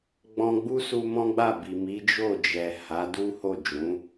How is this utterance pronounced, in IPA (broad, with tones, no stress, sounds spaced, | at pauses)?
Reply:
ɡ͡b ɔ̃˧ ɡ͡b u˦ s u˧ m ɔ̃˦ ɡ͡b a˦˨ b i˨ m i˨˦ d͡ʒ o˦˨ d͡ʒ ɛ˨ h a˨˦ d u˦ h o˦˨ d͡ʒ ũ˨˦